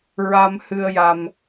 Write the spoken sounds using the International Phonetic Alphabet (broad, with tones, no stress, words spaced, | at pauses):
ɹa˧mhɨ˧ə̯ja˧m